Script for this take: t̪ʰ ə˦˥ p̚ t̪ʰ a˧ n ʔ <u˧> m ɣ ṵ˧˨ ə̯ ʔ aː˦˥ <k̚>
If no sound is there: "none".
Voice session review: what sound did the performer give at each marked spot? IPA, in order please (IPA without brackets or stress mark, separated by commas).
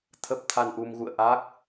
u˧, k̚